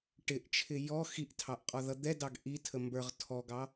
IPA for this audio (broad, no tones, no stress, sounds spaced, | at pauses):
ʈ ɪ ʔ t͡ʃʰ ɪ j ɔ x i ʔ tʰ ɑ ʔ qʼ ɔ ð ʌ d̪ ɛ d ɑ ɡ ʔ i tʰ ə m b ə˞ ʁ tʰ ɔ ɡ ɑ